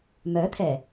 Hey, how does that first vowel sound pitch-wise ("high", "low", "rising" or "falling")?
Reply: rising